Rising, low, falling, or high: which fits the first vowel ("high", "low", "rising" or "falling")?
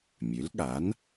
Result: rising